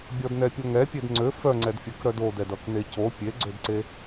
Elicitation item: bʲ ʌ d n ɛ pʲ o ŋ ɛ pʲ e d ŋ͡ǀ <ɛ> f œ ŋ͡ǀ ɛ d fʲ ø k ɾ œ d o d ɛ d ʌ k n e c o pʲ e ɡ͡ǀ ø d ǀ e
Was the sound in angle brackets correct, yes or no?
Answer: no